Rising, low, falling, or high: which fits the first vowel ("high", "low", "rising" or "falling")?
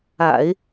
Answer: low